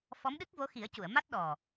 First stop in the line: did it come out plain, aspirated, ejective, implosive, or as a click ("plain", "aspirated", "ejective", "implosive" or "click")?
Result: implosive